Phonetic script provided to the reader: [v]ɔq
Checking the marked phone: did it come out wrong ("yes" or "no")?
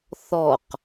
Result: yes